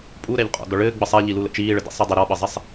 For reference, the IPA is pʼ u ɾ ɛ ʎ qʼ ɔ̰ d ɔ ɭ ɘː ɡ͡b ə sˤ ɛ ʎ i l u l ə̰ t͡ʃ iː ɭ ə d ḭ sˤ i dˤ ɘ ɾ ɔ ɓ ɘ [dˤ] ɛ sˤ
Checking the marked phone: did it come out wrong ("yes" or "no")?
yes